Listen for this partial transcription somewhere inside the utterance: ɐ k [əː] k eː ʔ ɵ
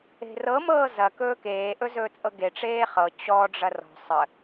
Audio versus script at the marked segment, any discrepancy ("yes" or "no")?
yes